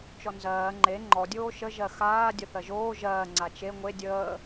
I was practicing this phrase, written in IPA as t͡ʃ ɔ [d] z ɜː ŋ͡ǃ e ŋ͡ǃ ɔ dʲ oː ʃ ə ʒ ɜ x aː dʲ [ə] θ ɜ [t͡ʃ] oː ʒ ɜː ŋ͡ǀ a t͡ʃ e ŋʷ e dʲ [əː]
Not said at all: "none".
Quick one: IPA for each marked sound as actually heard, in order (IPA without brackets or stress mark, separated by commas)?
n, ə, ʒ, əː